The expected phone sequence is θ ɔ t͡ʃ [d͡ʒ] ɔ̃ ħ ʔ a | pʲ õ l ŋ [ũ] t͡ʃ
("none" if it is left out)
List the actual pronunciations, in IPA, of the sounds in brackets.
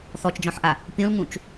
d͡ʒ, ũ

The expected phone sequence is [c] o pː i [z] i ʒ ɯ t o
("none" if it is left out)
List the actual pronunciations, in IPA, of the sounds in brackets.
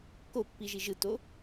k, ʒ

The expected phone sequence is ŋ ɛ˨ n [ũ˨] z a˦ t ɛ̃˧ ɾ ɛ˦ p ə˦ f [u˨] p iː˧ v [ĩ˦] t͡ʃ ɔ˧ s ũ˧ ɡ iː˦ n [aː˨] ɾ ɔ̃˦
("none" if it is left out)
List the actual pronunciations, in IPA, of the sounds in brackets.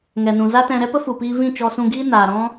ũ˨, u˨, ĩ˦˨, aː˨

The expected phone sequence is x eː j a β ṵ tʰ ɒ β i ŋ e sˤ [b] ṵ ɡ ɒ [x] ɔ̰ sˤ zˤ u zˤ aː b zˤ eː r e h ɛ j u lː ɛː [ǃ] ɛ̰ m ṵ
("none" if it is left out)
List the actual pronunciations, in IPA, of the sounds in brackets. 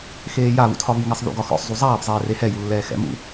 ð, x, x

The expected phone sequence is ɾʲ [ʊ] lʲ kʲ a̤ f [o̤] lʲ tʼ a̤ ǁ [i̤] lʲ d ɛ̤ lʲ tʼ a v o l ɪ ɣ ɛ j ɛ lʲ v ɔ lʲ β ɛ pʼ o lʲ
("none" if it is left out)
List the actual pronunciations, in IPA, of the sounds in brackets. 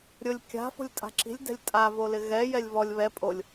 ʊ, o̤, i̤

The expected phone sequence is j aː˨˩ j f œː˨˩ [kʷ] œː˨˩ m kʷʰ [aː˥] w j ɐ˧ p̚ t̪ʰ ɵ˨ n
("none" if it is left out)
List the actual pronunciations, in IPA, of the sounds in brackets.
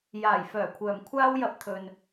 kʷʰ, aː˥

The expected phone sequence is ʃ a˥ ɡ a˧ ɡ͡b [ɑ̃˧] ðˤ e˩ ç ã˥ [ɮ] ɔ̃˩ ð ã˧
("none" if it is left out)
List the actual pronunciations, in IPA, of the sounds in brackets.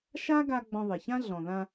ɔ̃˧, ɮ

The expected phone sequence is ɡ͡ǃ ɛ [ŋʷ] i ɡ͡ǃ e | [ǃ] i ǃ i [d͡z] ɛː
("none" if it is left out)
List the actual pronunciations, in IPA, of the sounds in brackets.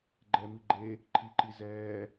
m, ǃʰ, z

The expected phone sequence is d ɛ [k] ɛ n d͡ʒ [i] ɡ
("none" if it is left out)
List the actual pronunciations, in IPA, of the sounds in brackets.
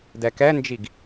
k, i

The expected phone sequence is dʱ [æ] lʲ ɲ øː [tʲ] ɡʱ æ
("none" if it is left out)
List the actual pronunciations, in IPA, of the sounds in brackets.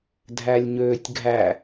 æ, tʲ

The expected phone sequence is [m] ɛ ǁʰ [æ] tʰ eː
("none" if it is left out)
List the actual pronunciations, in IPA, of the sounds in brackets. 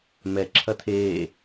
m, ɐ

